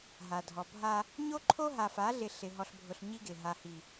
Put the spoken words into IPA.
ɦ a˨ dʱ ɔ˨ bʱ a˦ | ɲ o˦ ǃʰ o˦ ɦ a˨ f a˨˦ ɮ ɪ˨ ɬ ɪ˨ ɦ ɔ˨ ɬ bʱ ʊ˨ ɬ ɲ i˦ ɡ ɪ˨ ɦ a˨ h i˨

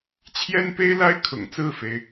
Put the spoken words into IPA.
t͡ɕʰ j ɛ˥ n p e˥ ɪ̯ l a˥ ɪ̯ kʰ ʊ̰˨˩ ŋ t͡s ɹ̩˥˩ f e˩ ɪ̯

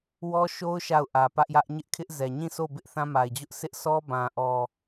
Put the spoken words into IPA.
w ɔ˦ ʃ o˦ ʊ̯ ʃ a˦˨ ʊ̯ ʔ ä˨ p ä˦ ʔ j ä˦ ʔ ɲ ɪ˦ ʔ kʰ ɪ˦ ʔ z ɛ˨ ɲ ĩ˦˨ s o˦˨ b ɪ˦ ʔ θ ã˦ m a˨ ɪ̯ d͡ʑ ʊ˦ ʔ sʰ ɪ˦ ʔ sʰ ɔ˦ b ã˨ ʔ ɔ˨

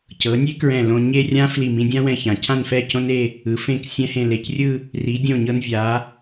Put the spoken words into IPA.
c ɤ˩˧ nʲ e˥ k ɹ ɛ̃˧˩ l õ˧ ɲ e˥˧ rʲ ã˥ f l i˧˩ m ĩ˧ dʲ ã˥ w ɛ̃˧ ç ã˩˧ cʰ ã˥˧ n f ɛ˥˧ c õ˥ n e˥˧ | ɯ˩˧ f ẽ˧˩ k sʲ ɛ̃˧ h ẽ˧˩ l e˧˩ c rʲ ɯ˥˧ | r i˩˧ dʲ õ˧˩ ɲ ɤ˧ n vʲ a˩˧

